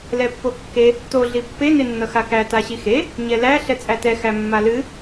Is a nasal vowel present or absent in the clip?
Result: absent